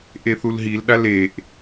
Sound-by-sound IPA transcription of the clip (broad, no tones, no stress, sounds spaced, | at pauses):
ʔ e θ u l ɦ i l ɗ a l e ʔ